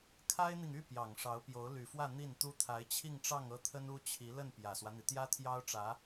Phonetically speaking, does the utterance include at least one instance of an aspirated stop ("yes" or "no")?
yes